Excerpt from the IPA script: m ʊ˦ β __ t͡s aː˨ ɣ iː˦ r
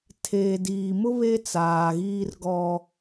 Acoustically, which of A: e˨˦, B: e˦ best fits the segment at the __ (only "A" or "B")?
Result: B